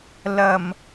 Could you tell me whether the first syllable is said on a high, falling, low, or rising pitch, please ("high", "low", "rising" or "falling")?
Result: low